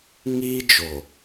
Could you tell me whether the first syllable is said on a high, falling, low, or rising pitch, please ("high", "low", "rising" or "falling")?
high